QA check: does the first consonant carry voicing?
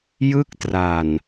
yes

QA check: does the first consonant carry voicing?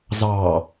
yes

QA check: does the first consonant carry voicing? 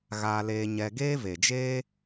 yes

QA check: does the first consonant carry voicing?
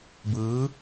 yes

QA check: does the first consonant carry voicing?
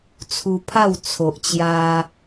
no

